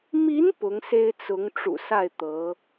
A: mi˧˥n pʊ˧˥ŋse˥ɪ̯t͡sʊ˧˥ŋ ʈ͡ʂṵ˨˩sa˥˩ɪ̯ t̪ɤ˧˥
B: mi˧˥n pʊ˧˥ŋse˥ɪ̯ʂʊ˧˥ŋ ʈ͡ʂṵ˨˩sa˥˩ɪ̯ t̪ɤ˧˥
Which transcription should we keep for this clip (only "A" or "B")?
A